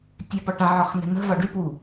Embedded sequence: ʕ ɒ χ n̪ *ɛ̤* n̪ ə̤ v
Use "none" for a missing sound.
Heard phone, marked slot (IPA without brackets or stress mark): ɛ̤